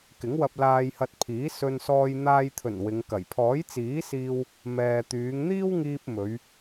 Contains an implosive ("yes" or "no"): no